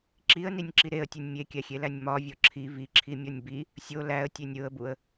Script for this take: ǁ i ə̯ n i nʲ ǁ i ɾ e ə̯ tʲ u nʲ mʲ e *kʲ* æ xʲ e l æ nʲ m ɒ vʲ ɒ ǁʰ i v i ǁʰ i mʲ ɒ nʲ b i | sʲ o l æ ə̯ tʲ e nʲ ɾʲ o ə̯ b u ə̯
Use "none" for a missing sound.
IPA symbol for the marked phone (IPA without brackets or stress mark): kʲ